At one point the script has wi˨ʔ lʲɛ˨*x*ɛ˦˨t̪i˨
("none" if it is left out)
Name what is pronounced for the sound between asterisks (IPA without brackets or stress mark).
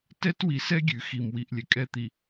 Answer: kʼ